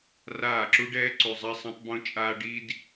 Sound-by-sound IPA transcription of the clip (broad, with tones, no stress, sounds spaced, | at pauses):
r aː˦˨ ǁ u˦ ɖ ɛː˦ ǀ u˧ zˤ a˦ sˤ ẽ˦ tˤ b õ˧ t͡ʃʼ aː˧ ɖ i˦ d